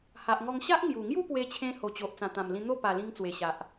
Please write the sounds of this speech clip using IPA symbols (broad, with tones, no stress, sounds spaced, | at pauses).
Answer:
h a˨ ʔ ŋ ɔ˧ ŋ ɕ a˦ ʔ ŋ j u˨˩ ŋ j u˥˧ p w e˧ t͡ɕʰ ẽ˧ h o˨˩ t͡ɕ o˨ ʔ t͡s ã˨˩ t̪ ã˨˩ m l ĩ˧ n̪ o˥˧ p a˨˩ l ĩ˧ ŋ t͡s w e˨˩ ɕ a˨ ʔ